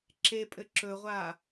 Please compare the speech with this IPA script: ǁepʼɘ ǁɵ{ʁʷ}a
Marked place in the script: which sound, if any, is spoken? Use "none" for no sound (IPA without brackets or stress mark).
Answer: ʁʷ